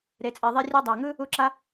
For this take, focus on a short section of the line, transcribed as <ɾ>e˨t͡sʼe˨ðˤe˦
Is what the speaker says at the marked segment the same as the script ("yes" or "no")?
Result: yes